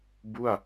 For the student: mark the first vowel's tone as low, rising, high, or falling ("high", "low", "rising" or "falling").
falling